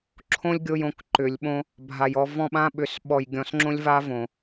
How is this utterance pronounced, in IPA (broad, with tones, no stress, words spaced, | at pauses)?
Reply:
ǁʰõ˦lʲɡʲo˧j õ˧kǃʏ˨˦lʲɓõ˦ | bʱa˨jɔ˧ vɔ̃˧ɓã˧ɓʏ˨s ɓɔ˨jɡʲɔ̃˨sŋ͡ǁõ˧lʲva˧ võ˨